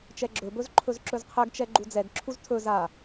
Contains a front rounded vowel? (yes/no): no